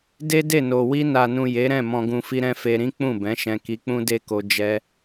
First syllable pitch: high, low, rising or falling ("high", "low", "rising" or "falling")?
high